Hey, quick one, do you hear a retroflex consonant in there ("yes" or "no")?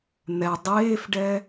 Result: yes